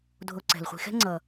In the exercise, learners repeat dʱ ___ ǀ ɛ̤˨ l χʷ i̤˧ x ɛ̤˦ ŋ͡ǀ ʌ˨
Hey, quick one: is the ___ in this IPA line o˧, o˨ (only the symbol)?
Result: o˧